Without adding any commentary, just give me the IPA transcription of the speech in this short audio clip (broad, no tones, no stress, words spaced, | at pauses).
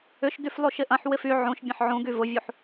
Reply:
ʏʃdyf lˠuʃɪʔɐ̃ħwɪf y ʕũʃ bʲɐ̃ħʕũɡy vʊvʲuħ